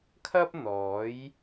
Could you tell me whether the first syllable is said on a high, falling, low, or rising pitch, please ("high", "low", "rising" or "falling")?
high